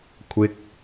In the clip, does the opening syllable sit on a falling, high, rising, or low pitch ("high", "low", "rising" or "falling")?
high